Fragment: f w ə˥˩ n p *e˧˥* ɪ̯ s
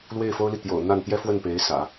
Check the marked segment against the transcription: correct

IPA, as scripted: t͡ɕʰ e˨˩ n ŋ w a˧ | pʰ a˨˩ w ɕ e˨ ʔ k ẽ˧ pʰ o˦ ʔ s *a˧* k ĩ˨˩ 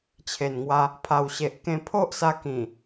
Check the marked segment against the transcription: correct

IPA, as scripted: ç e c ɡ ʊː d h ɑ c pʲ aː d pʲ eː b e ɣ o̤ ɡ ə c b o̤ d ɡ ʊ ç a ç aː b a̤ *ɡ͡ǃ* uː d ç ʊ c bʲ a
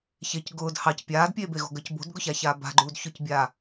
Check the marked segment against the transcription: correct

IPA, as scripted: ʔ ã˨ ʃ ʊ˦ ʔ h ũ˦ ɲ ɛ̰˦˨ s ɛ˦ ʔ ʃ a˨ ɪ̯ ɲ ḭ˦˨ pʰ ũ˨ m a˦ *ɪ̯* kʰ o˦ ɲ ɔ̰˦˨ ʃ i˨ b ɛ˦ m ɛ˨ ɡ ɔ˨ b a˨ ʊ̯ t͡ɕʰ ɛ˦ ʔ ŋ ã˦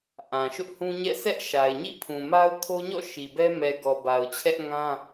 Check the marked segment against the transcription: incorrect: ʊ̯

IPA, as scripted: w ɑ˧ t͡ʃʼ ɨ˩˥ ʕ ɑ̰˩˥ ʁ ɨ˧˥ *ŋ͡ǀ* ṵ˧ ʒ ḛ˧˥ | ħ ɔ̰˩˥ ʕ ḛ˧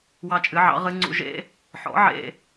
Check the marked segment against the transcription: correct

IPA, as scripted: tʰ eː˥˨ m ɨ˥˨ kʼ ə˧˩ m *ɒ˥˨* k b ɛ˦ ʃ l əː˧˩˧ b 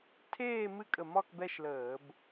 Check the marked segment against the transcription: correct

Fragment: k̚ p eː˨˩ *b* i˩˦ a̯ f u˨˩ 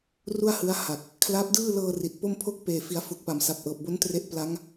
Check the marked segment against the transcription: incorrect: f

